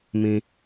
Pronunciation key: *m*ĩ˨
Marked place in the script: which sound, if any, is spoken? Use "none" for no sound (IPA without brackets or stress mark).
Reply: m